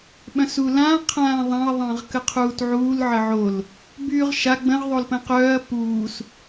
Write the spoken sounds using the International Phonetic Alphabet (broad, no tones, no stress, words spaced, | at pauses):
ɓœ̃sulã qʰãːðˤãɐ̯ ðˤə̃ːʁkəqʰuːtʕuːl ʕəʕol | byːʁʃa ɡ͡bə̃ʁ ðˤolpə̃ːqœːɐ̯ puːs